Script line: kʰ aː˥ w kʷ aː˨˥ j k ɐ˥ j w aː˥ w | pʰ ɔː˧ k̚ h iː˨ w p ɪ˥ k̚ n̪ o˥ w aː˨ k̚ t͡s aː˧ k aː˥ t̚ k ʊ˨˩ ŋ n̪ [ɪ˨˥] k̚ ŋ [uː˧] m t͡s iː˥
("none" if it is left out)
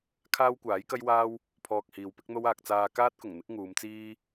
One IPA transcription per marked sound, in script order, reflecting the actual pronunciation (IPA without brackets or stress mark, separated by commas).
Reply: ɪ˨˥, uː˨˧